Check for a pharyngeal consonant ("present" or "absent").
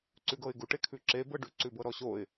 absent